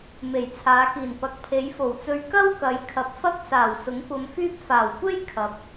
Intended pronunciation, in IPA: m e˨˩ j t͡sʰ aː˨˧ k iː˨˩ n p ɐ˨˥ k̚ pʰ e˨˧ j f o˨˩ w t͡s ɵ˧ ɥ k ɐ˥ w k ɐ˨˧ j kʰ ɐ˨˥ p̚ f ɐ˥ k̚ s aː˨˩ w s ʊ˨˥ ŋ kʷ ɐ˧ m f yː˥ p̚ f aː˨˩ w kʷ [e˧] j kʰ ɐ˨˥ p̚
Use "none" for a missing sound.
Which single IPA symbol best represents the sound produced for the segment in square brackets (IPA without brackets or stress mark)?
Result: e˥